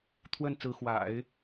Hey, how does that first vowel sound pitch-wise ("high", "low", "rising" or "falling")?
falling